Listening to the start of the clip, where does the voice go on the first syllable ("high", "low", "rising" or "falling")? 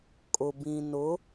low